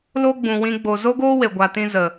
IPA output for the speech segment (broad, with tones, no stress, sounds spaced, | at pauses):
l o˦ ɡ͡b ũ˨ w ĩ˧ ɡ͡b o˨ z o˦ ɡ oː˦ w e˨ ɡʷ a˨ t ĩ˧ z ə˨